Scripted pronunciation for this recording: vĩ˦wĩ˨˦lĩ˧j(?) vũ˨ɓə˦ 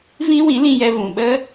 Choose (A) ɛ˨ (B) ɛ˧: B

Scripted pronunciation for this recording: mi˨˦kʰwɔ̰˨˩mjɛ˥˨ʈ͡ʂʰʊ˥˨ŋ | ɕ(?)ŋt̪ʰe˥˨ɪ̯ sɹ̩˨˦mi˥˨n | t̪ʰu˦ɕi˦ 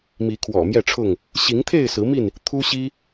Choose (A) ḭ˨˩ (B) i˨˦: B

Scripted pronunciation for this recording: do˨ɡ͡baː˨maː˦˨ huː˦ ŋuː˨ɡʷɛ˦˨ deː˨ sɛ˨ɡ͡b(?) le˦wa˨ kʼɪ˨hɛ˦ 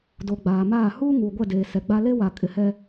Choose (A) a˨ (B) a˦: B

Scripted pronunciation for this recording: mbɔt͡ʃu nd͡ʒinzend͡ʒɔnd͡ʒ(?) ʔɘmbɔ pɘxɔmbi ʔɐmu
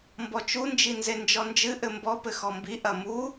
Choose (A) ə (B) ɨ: B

